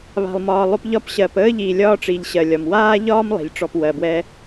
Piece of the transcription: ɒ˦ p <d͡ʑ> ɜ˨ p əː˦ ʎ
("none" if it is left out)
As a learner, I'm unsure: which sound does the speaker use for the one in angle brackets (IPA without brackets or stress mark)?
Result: ɕ